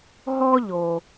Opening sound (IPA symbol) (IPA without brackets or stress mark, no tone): ɦ